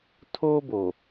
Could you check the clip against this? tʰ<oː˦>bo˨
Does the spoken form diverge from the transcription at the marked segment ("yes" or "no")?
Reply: no